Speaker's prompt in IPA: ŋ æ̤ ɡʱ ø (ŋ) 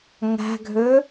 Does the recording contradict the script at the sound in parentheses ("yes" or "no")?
yes